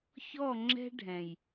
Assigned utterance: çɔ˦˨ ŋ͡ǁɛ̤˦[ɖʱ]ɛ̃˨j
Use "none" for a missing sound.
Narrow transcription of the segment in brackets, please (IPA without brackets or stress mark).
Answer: ɖʱ